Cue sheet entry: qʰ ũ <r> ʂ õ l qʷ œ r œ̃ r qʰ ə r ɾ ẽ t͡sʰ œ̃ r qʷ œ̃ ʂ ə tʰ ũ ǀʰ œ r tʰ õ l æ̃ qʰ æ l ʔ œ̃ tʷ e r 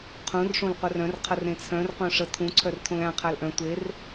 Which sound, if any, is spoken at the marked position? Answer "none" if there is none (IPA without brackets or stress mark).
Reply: r